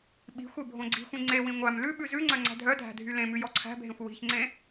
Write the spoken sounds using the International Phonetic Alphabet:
ɓ i̤ xʷ e bʱ õ ɡ͡ǀ i̤ xʷ ĩ ŋ͡ǀ e w ĩ ŋʷ æ m l ʉ ɓ ʉ z ʉ ŋ͡ǀ œ ŋ͡ǀ æ̤ dʱ œ dʱ æ̤ dʱ y l ẽ m ʉ j ɔ ǀʰ æ̤ bʱ ẽ xʷ w i̤ ç ŋ͡ǀ ẽ

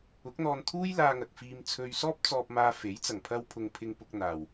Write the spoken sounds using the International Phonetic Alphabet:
ʊ˨˥ k̚ n̪ ɔː˧ n t̪ʰ uː˥ j l aː˧ ŋ ɐ˨ k̚ f iː˧ m t͡sʰ ɵ˧ ɥ s ɔː˥ p̚ t͡s ɔː˧ p̚ m aː˧ f e˨˥ j t͡s ɐ˨˩ ŋ pʰ ɐ˧ w pʰ ʊ˨ ŋ pʰ ɪ˧ ŋ p ʊ˧ k̚ n̪ aː˨ w

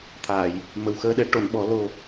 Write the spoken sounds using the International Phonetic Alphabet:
t̪ʰ aː˨˩˨ j | m ə˨˩ w x əː˧ ɗ ɛ˧˥ ʈ o˨˩˨ n ɓ ɔ˨˩˦ l o˨˩

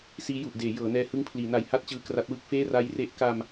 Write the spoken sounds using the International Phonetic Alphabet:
s iː˦˥ j u˨˩ ʔ d eː˩˦ j ɤː˩˦ n ɛː˧ h ɯ˧ ŋ pʰ l iː˩˦ n a˨˩ j h a˥˩ t̚ t͡ɕ ɯː˧ k r a˦˥ t̚ w ɯ˥˩ k̚ f eː˥˩ r a˦˥ j r e˦˥ ʔ k a˧ m

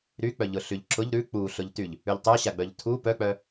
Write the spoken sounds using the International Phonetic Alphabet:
ɾ y k͡p œ ʎ ʊ ɬ y ʎ ǁ ʊ ʎ ɾ ʉ k͡p u ɬ ʊ ʎ t y ʎ | ʉ ʎ tˤ œ ɕ a ɡ͡b œ ʎ tʰ u p œ k͡p œ

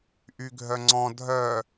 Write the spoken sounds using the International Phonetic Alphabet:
ʔ y ɡʱ œ ŋ͡ǀ ɔ̃ dʱ œ

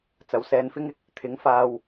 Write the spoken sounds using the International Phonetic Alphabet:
t͡s ɐ˨ w s ɛː˧ n f ɪ˥ ŋ ɪ˨˥ k̚ | t̪ʰ ɪ˨˥ ŋ f aː˧ w

